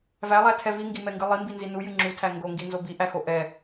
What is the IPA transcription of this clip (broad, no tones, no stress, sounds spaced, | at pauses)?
v æ lˠ æ tʰ ɛ v i ŋ ɡ i m ɛ ŋ ɡ ɨ lˠ i m b i n z i n u j ɨ ŋ͡ǁ u tʰ æ ŋ ɡ o ŋ ɡ i n z o b i ʔ æ x o ʔ ɛ